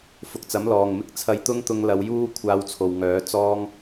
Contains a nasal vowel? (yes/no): no